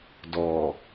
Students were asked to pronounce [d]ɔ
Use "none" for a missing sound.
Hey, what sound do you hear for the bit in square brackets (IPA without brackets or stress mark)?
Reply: d